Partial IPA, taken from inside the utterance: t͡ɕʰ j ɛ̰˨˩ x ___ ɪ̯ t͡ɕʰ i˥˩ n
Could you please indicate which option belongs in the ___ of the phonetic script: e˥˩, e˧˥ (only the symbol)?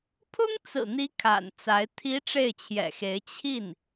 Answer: e˧˥